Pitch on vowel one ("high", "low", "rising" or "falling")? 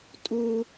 high